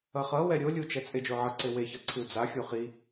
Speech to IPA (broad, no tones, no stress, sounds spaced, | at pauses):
ʌ χ ʌ w ɛ ɾʲ o lʲ u t͡ʃ ɛ t͡sʼ e d͡ʒ o ʕ ʌ ǀ e w e ç ʌ ǀʰ ɯ d͡z a xʲ o χ i